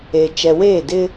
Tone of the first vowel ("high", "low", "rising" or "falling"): low